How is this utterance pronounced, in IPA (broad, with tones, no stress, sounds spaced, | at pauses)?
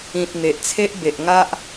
ĩ˨ t̚ n̪ e˨ ʔ t͡sʰ e˦ ʔ b e˨ ʔ ŋ a˦ ʔ